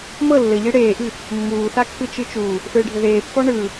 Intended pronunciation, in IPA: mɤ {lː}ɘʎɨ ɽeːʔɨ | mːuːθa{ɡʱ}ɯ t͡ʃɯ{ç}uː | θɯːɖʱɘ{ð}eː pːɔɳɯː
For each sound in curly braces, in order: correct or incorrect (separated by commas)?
correct, incorrect, incorrect, correct